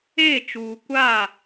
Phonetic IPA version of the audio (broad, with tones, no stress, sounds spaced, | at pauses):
eː˦˨ t͡ʃ uː˨ kʷ a˦˨